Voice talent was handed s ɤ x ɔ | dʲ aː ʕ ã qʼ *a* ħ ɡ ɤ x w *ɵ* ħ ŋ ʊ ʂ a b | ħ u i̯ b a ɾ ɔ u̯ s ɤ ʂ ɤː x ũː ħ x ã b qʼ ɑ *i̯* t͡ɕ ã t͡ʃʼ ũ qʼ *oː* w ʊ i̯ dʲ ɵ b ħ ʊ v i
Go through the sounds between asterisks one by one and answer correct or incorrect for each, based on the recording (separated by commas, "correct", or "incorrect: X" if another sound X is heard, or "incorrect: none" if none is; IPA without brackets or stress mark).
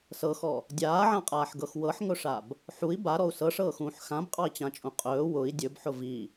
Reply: incorrect: aː, incorrect: ɤ, correct, incorrect: ɵː